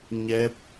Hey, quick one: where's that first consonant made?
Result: palate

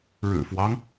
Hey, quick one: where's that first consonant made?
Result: retroflex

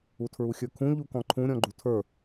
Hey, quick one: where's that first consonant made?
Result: tongue tip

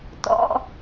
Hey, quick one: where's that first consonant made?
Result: tongue tip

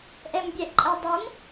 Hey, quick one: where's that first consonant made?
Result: throat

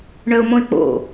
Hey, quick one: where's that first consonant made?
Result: retroflex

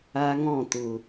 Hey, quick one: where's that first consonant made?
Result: velum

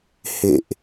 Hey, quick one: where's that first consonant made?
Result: throat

